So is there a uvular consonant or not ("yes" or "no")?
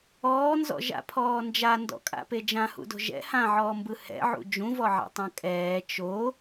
no